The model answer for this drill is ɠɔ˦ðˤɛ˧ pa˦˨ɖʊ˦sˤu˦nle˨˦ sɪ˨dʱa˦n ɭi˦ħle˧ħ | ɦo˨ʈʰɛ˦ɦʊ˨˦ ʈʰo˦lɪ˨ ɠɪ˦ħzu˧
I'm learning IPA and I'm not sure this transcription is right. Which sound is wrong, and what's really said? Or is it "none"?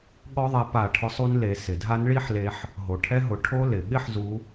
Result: ɖ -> ʈʰ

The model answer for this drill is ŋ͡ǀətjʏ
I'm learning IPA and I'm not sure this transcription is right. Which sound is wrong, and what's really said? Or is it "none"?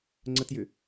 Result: none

